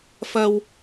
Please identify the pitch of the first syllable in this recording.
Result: high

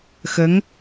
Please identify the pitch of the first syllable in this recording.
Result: rising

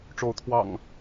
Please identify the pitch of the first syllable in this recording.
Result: rising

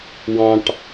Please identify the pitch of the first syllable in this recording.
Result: high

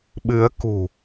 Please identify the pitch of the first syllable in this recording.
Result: rising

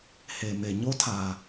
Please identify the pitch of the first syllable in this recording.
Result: low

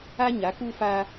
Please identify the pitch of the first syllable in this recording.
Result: high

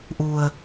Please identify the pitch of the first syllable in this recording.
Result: low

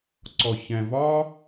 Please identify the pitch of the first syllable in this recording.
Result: low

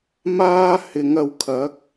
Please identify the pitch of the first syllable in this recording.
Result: high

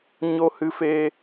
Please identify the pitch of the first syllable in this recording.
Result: high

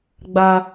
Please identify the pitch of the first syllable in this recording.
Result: high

